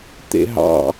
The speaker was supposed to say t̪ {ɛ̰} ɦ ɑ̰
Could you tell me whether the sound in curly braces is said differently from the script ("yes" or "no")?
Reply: yes